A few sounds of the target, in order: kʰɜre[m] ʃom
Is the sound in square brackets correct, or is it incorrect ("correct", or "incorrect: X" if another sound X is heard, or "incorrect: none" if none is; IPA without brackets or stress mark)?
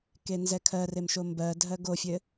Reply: correct